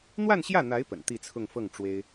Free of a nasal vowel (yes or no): yes